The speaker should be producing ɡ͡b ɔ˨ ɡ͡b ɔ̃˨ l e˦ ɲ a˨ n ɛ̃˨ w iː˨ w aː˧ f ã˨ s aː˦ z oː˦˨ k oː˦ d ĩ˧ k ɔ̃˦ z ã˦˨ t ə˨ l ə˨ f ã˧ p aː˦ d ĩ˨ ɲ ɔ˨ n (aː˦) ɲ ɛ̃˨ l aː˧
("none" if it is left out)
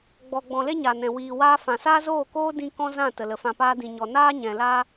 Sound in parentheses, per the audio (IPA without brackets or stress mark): aː˦